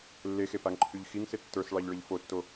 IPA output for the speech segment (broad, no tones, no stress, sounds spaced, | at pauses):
lː e x e p a ŋ ǃʰ y ʎ x i ŋ s ɪ tː ə˞ s ɭ ɑ ʎ ɭ ə ʎ f o tː o